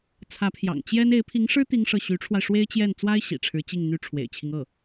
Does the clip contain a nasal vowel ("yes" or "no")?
no